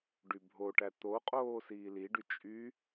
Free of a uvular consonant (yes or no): no